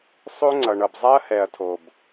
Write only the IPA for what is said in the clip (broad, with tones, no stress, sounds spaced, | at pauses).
sˤ o˦ ŋ͡ǀ ʌ˨ ɳ ʌ˨ b zˤ a˦ ɐ̯ h ɛ˨ ɐ̯ tʰ o˨ b